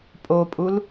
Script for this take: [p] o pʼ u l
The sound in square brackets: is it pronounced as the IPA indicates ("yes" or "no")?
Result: no